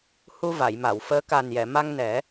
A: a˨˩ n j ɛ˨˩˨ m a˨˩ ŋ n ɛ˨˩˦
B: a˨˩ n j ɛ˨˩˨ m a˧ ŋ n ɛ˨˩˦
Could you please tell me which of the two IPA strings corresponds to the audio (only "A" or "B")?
B